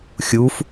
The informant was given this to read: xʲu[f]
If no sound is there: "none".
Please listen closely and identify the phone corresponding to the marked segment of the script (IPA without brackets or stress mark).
f